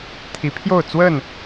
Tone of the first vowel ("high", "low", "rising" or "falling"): rising